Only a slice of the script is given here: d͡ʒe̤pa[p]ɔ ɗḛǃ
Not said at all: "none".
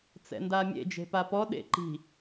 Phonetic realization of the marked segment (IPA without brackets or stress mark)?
p